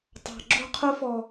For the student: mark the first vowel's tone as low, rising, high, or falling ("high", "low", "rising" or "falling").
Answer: low